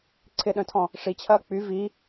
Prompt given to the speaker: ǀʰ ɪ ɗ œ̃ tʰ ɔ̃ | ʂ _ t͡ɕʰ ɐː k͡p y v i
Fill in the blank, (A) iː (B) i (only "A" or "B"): B